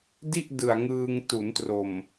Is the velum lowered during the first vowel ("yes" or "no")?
no